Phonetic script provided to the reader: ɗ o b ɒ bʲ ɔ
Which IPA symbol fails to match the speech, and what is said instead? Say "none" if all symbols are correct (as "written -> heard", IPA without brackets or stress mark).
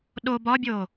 ɔ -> o